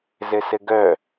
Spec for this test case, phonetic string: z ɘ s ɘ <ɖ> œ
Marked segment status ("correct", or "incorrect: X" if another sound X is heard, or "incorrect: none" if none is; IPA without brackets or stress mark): incorrect: ɡ